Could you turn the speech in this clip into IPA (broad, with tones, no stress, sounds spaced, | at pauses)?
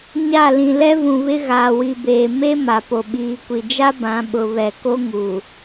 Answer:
ɲ a˦˨ l ĩ˨ l ɛ˦ v ũ˨ β ɪ˦ ɣ aː˨ w i˨ b eː˨ m e˦ m a˨ p o˨ ɓ iː˨ kʷ i˨ d͡ʒ a˦ b ã˨˦ ɓ ʊ˨ β ɛ˨ k o˦ ŋ uː˨